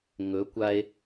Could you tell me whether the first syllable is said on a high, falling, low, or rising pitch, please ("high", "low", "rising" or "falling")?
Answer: rising